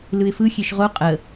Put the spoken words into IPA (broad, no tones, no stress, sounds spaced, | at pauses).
l ɯ ɪ̯ f ɯ xʲ e ʃ ʁ o qʼ ə